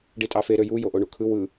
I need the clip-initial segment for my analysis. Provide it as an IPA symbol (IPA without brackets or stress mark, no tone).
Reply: ɖ